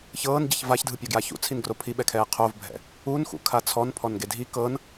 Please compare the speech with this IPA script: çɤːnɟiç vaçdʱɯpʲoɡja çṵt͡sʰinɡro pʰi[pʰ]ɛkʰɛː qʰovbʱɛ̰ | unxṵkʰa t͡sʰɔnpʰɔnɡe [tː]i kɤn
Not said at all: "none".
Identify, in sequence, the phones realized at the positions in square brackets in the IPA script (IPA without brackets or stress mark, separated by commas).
ɓ, dʱ